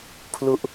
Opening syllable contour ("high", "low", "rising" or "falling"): falling